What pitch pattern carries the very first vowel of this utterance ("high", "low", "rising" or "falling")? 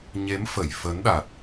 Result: rising